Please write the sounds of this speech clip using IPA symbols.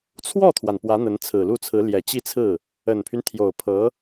t͡sʰwɔ˥˩t̪ʰwa˩n pwä˧˥n̪ə˧˥n t͡sʰɹ̩˨˩lu˥˩t͡sʰɹ̩˧˥ ljɛ˨˩t͡ɕi˥˧t͡sʰɹ̩˥˩ | ə˨˩npʰy˦n t̪ʰjo˨˩ʊ̯pʰɤ˧˥

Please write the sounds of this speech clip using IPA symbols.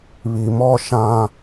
βi˨mɔ˦ ʃã˦

